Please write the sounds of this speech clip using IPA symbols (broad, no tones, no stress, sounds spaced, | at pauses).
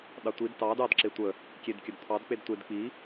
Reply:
ɗ ɑ tʷ i d t ɑ d ɑ d ǁ e tʷ ə | kʲ e d kʲ ə d t̪ʰ ɑ d k͡p e d tʷ e d k͡p i